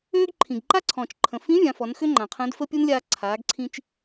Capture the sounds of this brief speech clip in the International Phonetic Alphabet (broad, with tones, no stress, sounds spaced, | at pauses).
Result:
øː˥ ɡ ǃʰ ĩ˩ ɡ ǃ a˥ ǀʰ ɔ̃ː˩ t͡ʃ ǃʰ ə̃˩ f ĩ˧˥ vʲ ã˩˧ f ɔ˩˧ n x ø˥ ŋ͡ǃ ã˩ qʰ ə̃ː˧˥ d f ə˥ pʲ u˥ n lʲ aː˧ ǀʰ aː˩˧ ɡ ǀʰ ĩ˧ t͡ʃ